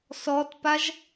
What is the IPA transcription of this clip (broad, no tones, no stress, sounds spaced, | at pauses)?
s ɔ t p a ʒ